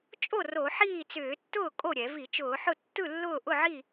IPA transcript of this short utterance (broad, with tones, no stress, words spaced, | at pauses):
t͡ʃʼo˥˨ ro˧˩˧ħiː˥˨t͡sʏː˧˩˧ tːʊː˥˨kʼo˥˨ɾʲɛ˧˩˧vi˧˩˧ t͡ʃʊː˧˩˧ħʊ˥˨ tːɯ˥˨lːʊː˥˨ ʔʊ˥˨ʕi˥˨